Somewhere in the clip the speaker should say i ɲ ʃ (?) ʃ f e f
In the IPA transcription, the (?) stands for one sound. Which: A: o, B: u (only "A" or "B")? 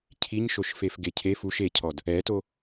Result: A